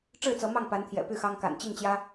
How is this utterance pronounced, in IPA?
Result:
ʈ͡ʂɻ̩˥˨t͡sɤ˨˦ mɑ˥˨ŋpa˨˦nt̪ʰjɛ̰˨˩ py˥˨xɑ˦ŋ ka̰˨˩nt͡ɕi˥˨ŋt͡ɕjä˦

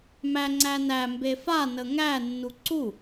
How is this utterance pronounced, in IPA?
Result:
mæ ŋ͡ǀænæ mbefa nəŋæ nːuǀu

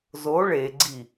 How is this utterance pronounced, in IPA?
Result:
zo ɭeɡ͡ǀi

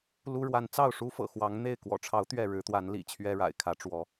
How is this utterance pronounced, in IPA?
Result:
lu˦ɻwa˨˦n t͡sɑ˥˨ʊ̯ʂu˦fɤ̰˨˩ xwɑ˨˦ŋn̪e˥˨ɪ̯ kwɔ̰˨˩ʈ͡ʂʰɑ˨˦ʊ̯ t̪ɥɛ˥˨ɻɻ̩˨˦ t̪wa˨˦nlḭ˨˩ t͡ɕʰɥɛ˦ɻa̰˨˩ɪ̯kʰä˨˦ʈ͡ʂwɔ˨˦

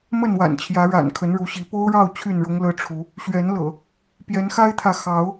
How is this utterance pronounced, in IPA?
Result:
mə˥˨nwa̰˨˩nt͡ɕʰjä˨˦ ɻa̰˨˩nkʰə˨˦nɻu˨˦ɕi˨˦ po˦ʊ̯ɻɑ˥˨ʊ̯ t͡ɕʰy˥˨nɻʊ˦ŋlɤ˦ʈ͡ʂʰu˨˦ | ɕɥɛ˨˦nlɤ̰˨˩ | pjɛ˨˦nxa˦ɪ̯t̪ʰä˨ xɑ˨˦ʊ̯

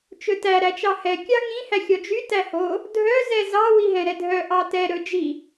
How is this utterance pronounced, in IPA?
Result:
t͡ʃɵtæ ɾæt͡ʃɑhɛ kʲɑŋĩ hæxʲɔd͡ʒy tæho | dʱœ zɛzɑ wiɦɛ̃ɾɛdʱœ ʔɑtɛ ɾɵd͡ʒi

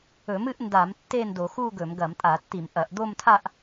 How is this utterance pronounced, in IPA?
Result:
ɵ˧˩˧mɨ˥˧ʔnda˧˩˧m tːe˥˧ndo˧˩˧x u˥˧ɡɵ˧˩˧m ɡɐ˧˩˧mtʼa˧˩˧tːi˧˩˧mʔɐ˧˩˧ʔ d̪o˥˧mtʰa˥˧ʔ

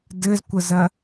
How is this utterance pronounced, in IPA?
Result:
dɘzkʷəzɐ

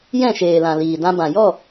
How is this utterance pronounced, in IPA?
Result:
jɛ̃˦˨ʃeː˨lã˨ liː˨dã˧bã˨ jɔ˦˨

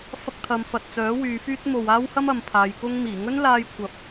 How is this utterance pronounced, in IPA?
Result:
fɐ˥k̚t̪ʰɐ˧m fɐ˨t̚t͡sœː˨˥ wyː˨˧fyː˥t̚ mo˨waː˥whɐ˥m ɐ˨˧mpʰaː˨˧j kʊ˧ŋmiː˨˩ŋɵ˥n laː˧jkʷʰɐ˨p̚

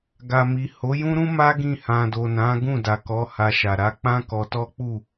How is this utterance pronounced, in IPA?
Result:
ɡa˨mi˨ ho˨˦jũ˦ɾũ˦ma˦ ɡĩ˦˨ hã˨do˨nã˨˦ ɡũ˦˨da˨kɔ˨˦ ha˧ʃa˨ ɾa˧k͡pã˦ kɔ˧tɔ˦k͡pu˦˨

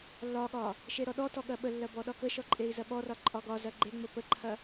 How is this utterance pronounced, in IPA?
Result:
lːɒɠɒ | ʃeɾɔɗɔtɔ ɠɐɓəlːɐ bɔɗɒkəʃɔ ǃʼei̯zɐɓɔrɒ ǃʼɒɡɒzɐ ɡ͡ǃeŋ͡mə pəǃʰɐ

